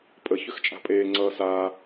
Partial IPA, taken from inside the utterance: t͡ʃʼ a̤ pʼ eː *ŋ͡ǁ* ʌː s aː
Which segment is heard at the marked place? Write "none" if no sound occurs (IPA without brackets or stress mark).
ŋ͡ǀ